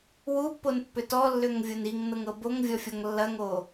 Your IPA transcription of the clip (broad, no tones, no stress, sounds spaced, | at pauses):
w u pː o n pː ʏ t ɔ lː ʏ ŋ vʲ o n i ŋ n ɤ ŋ ɤ b o ŋ vʲ ɔ fʲ ɔ ŋ lː ɐ ŋ o